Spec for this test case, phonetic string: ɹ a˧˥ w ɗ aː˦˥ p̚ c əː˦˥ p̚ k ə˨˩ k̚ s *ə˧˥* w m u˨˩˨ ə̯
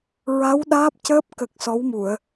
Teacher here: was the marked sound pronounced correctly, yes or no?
no